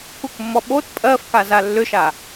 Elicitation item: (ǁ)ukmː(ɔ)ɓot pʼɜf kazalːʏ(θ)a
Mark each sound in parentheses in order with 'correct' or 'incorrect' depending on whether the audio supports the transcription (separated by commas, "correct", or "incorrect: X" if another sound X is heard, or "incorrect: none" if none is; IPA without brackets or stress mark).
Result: incorrect: k, correct, incorrect: ʃ